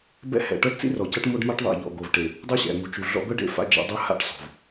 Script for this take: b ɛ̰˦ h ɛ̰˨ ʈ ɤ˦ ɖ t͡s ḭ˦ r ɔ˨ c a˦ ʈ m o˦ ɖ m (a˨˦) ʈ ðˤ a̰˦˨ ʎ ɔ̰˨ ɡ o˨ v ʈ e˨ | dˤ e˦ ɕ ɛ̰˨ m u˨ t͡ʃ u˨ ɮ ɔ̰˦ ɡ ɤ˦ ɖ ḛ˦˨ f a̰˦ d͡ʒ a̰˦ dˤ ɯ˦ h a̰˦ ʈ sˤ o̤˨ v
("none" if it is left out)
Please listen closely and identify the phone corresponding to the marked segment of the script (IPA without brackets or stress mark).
a˦